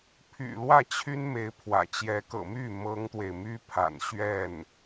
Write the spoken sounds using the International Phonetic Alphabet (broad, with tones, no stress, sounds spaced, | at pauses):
pʰ y̰˨˩ l w ä˥˩ t͡ɕʰ y˥ n m e˧˥ ɪ̯ pʰ w ä̰˨˩ t͡ɕ j ɛ˧˥ k ɤ̰˨˩ m y˥˩ m ɤ˥ ŋ t̪ w e˨ ɪ̯ m y˥ pʰ a̰˨˩ n ɕ ɥ ɛ˥˩ n